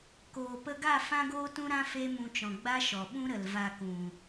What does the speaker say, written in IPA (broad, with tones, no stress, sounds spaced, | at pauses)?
k oː˨ p ə˧ ɡ a˦˨ f ã˦ ɡ oː˦ t ũ˦ ɾ ã˦ f e˦ m ũ˧ t͡ʃ ɔ̃˨ ɡ͡b a˦ ʃ ɔ˨ ɓ ũ˦ ɾ ə˨ l v a˧ k ũ˨